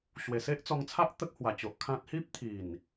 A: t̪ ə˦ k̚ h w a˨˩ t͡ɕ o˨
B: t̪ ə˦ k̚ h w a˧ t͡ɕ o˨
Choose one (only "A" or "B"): A